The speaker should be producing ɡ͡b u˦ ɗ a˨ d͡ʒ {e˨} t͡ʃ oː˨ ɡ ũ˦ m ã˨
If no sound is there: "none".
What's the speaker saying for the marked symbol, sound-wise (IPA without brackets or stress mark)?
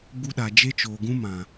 e˦